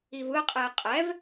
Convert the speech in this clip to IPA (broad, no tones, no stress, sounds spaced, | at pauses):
i v ɯ qʼ ɛ ə̯ qʼ ɛ v